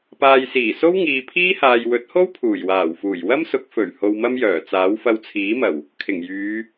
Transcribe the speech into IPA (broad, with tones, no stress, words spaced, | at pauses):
paː˨jsiː˨˩ so˥wŋiː˨pʰiː˥haː˨j wɵ˨˥t̚ho˥wpʰuː˨˩j waː˨˩wfuː˨˩j wɐ˥msʊ˨˥k̚ fɵ˨˩ɥ ho˧wmɐ˥mjœː˨˩t͡saː˨˥w fɐ˧wt͡sʰiː˨˥mɐ˨˩w | kʰɪ˨˩ŋjyː˨˧